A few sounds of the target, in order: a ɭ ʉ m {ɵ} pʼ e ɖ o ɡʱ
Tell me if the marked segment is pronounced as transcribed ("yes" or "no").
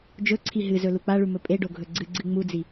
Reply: yes